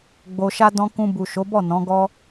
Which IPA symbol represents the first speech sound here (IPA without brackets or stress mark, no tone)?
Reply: ɡ͡b